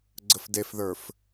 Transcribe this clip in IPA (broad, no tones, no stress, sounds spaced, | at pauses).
ɡ͡ǀ ə f d e f ð ə˞ f